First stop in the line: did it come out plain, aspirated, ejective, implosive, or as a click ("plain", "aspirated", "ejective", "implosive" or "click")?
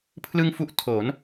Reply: aspirated